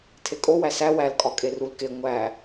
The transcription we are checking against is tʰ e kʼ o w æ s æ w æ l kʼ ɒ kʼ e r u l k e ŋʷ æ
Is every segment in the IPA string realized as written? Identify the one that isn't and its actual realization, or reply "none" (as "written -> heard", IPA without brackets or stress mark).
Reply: none